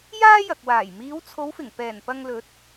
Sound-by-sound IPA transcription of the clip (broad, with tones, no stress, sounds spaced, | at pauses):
j aː˥ j ɐ˨ k̚ w aː˨˩ j m iː˨˧ w t͡sʰ o˨˧ w f ɪ˨˩ ŋ p ɛː˨˩ n p ɐ˧ ŋ l ɵ˨˥ t̚